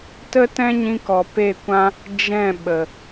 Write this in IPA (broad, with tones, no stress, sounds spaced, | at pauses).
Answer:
t ə˦ t ɛ̃˦ ɲ ĩ˧ k ɔ˨ p e˦˨ kʷ ã˦ | d͡ʒ ɛ̃˦˨ ɓ ə˨